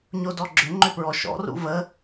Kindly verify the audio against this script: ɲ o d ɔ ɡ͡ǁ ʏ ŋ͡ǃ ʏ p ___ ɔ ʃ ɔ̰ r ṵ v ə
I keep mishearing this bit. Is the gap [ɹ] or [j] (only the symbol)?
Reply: ɹ